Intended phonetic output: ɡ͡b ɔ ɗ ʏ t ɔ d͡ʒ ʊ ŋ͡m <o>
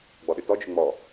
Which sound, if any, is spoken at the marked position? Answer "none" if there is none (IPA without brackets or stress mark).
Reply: ɔ